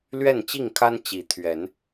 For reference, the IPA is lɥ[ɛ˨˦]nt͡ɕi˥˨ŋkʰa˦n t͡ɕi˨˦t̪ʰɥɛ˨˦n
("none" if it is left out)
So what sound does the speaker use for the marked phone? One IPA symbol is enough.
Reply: ɛ˥˨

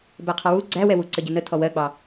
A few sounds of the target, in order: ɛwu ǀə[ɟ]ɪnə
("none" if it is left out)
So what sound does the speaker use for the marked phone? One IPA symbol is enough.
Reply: ɟ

